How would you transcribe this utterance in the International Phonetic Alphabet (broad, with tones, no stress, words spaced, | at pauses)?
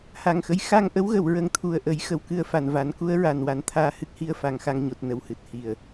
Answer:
ha˨˩ŋxə˧˥j xa˧ŋʔə˧˥w ɣə˨˩˨wɹə˨˩˦ŋ t̪ʰu˨˩ə̯ʔə˨˩˦j xə˨˩wkɨ˧ə̯fa˨˩nva˨˩˦n ku˧˥ə̯ɹa˨˩nwa˨˩˨n t̪ʰaː˧hɨ˦˥k̚hi˧ə̯fa˨˩˨ŋ xa˧ŋɲo˨˩t̚ nə˨˩whɨ˨˩t̚ hi˨˩˨ə̯